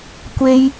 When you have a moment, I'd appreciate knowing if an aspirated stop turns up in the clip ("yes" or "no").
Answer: no